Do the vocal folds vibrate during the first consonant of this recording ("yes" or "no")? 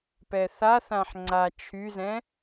no